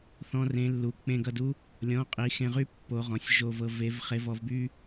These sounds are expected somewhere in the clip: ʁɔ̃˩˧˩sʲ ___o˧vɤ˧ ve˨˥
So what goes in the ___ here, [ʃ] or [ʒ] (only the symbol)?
ʒ